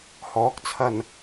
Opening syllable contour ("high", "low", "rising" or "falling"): rising